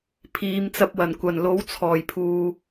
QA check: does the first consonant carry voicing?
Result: no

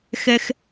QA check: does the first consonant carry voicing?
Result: no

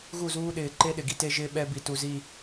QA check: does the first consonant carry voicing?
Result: yes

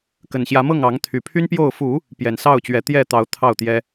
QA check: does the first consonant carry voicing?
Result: no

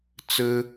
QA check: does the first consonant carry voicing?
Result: no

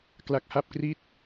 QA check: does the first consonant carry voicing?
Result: no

